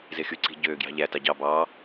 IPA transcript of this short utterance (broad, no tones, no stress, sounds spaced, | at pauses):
z e x y ǀ i̤ ɟ øː ɡ j ɑ̤ ʎ æ t ɑ ɟ ɑ b ɑː